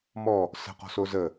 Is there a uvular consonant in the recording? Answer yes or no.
yes